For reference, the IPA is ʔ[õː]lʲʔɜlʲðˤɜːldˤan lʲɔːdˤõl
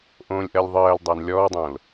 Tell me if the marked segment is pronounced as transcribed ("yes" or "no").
yes